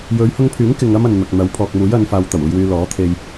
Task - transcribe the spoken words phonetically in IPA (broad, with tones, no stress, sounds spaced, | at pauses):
j ɵ˨˧ ɥ h ʊ˧ ŋ pʰ yː˨˥ ŋ k ɪ˧ ŋ ɐ˥ m ɐ˨ n n̪ ɐ˨ k̚ n̪ ɐ˨˥ w pʰ ɔː˨ k̚ m uː˨˥ j ɐ˨˧ n f aː˨ w t̪ ɐ˨˩ w uː˨ j w yː˨ l ɔː˨˥ t̪ʰ e˧ j